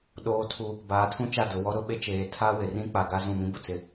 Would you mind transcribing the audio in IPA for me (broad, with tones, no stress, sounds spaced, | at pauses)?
ɗ oː˨ tʰ u˨ | b aː˨ tʰ ũ˦ t͡ʃ a˦˨ d ʊ˨ w ɔ˦ ɾ ʊ˦ ɓ e˦ t͡ʃ eː˨ tʰ a˦ w ɪ˨ r ĩ˦ k͡p a˨ ɡ a˦ z ũ˦˨ m ĩ˦ b ʊ˨ t͡s ɪ˨